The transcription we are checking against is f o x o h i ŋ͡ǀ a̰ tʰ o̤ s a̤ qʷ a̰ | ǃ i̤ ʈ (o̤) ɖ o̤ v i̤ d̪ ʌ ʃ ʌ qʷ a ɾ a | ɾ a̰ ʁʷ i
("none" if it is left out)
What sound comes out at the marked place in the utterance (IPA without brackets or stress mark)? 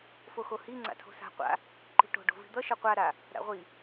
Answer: o̤